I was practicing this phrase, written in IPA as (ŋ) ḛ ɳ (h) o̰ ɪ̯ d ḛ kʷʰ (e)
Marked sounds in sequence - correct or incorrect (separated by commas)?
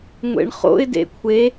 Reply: incorrect, incorrect, correct